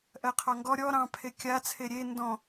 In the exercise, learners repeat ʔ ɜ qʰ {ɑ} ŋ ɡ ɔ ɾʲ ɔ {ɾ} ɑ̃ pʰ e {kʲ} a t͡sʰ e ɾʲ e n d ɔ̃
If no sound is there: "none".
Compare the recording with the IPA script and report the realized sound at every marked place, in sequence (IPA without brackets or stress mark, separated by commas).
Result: ɑ, ɾ, kʲ